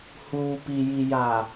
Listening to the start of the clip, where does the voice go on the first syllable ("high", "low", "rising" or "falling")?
low